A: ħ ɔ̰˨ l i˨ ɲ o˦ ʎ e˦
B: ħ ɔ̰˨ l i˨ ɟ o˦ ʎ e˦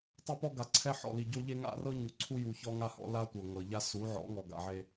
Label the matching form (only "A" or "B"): B